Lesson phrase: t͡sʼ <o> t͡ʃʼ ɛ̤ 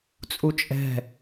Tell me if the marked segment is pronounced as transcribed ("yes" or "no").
no